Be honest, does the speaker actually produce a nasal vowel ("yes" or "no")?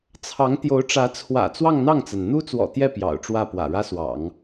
no